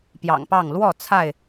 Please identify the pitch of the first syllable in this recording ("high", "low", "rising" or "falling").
low